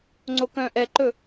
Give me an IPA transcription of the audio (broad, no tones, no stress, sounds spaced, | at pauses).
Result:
ŋ͡ǀ o k œ̃ː ʔ ɛ ǃ ɵ